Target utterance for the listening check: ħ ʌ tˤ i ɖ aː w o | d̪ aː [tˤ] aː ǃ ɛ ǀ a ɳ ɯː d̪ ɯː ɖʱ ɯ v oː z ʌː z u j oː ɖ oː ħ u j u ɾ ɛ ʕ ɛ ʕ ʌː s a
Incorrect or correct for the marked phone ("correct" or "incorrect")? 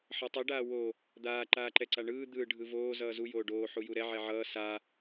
incorrect